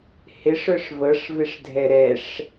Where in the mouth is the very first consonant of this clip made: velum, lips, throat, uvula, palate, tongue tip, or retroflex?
throat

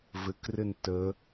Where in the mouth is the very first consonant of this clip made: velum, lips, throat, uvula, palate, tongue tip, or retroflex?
lips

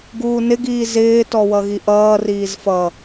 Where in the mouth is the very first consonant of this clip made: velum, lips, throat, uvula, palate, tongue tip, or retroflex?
velum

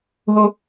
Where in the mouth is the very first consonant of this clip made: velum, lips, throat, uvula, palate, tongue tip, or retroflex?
throat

